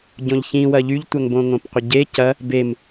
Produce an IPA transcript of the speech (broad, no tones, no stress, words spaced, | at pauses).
ɟõʎçĩwɐ ʎyʎtʷœŋbõŋõp qʷɪɟe cɐ | bem